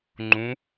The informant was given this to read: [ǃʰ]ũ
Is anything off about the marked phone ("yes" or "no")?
yes